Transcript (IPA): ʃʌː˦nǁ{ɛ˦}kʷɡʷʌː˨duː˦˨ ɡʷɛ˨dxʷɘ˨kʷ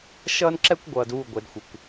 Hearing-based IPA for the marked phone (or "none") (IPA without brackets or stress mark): ɛ˦